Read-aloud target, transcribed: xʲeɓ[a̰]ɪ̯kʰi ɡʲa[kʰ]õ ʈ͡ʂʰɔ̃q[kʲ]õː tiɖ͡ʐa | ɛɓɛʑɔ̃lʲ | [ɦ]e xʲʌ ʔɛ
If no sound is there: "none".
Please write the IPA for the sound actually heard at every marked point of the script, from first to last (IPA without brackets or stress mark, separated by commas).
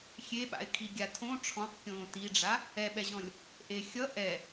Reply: a̰, tʰ, kʲ, ʔ